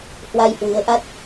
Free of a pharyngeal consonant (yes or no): yes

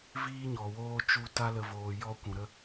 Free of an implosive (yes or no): yes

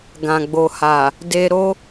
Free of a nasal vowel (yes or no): no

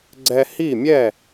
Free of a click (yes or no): no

